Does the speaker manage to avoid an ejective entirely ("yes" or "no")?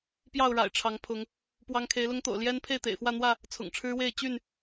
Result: yes